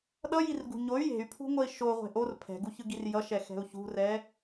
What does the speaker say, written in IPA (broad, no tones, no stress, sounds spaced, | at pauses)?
ɗ ʌ j i r ɡ ṳ ɲ o y̯ j e̤ y̯ pʰ ṳ ŋʷ ʌ i̯ ʃ o ʁʷ e̤ ʔ o r pʰ ɛ̤ ɡ u ç ɯ ɡ i r j ʌ ʃ ɛ x ɛ̤ u̯ ç ṳ r ɛ